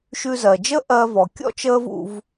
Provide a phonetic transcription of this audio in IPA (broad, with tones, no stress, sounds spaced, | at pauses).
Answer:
ʃ ʉ˧ z ɜ˩ d͡ʒ ə˥ ʔ ɜ˧ v ɔ˩ kʲ ɔ̰˥ t͡ʃ əː˥ v ṵ˧ v